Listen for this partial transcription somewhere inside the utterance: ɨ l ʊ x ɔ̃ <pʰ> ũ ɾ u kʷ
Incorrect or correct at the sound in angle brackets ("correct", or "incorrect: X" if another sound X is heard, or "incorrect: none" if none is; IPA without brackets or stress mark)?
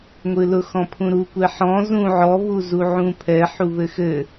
correct